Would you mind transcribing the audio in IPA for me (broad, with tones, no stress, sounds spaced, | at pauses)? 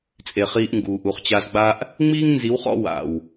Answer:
t͡sʼ e˨ χ iː˧ ʔ ŋ ɡ uː˨ ʔ u˨ χ t͡ɕ a˧ z ɡ͡b a˦ ʔ | ŋ͡m iː˦ ŋ n z i˨˦ w χ ɔ̰˧ w a̰˨ w